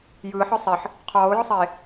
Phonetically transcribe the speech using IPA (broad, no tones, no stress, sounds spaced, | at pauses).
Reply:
j ɯː ħ ə˞ sˤ e ħ | qʰ ɔː ʊ̯ j ɔ sˤ eː